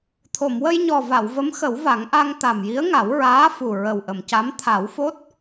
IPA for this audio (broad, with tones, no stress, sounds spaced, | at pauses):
t̪ʰ o˨˩˨ m w ə˧ j ɲ ɔ˨˩ v a˨˩˨ w v ə˧˥ m x ə˨˩˦ w v a˨˩˦ ŋ ʔ a˧ ŋ t̪ a˨˩ m j i˧˥ ə̯ ŋ a˨˩˦ w ɹ aː˧˥ f u˨˩ ɹ ə˨˩ w ʔ ə˨˩˨ m c a˧˥ m t̪ʰ a˨˩˦ w f o˦˥ t̚